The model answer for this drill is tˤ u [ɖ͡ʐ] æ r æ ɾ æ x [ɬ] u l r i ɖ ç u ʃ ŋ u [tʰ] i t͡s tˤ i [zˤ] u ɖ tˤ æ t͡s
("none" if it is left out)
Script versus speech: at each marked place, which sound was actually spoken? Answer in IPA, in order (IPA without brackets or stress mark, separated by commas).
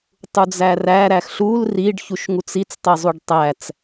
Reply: d͡z, ɬ, t͡s, zˤ